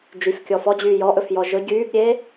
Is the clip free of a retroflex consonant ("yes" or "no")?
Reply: yes